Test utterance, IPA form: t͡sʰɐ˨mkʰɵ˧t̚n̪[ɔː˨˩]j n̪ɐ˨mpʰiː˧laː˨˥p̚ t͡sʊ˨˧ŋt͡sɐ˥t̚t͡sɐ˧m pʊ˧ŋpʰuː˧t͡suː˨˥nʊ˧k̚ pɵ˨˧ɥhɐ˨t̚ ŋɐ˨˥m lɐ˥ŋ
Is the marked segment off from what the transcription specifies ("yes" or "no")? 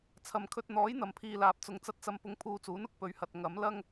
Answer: yes